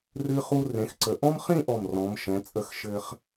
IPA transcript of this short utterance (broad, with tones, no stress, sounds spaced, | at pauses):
r ɨ˧ χ u˧ r ẽ˩˧ x ǀ ə˩˧ ʔ ɔ̃˥ m χ ĩ˥˧ ʔ ɔ˧˩ m r ɔ̃˩˧ m ʃ ɛ̃˩˧ t͡sʼ ə˧˩ x ʃ ɘ˧ χ